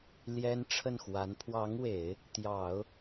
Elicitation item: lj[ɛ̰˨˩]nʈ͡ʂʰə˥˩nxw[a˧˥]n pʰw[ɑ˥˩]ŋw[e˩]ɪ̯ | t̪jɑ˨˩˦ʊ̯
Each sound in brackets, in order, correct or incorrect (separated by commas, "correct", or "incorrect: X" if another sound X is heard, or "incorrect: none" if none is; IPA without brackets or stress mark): incorrect: ɛ˥, correct, incorrect: ɑ˧˥, incorrect: e˨˩˦